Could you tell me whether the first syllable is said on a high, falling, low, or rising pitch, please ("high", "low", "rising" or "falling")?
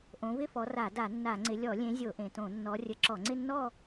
rising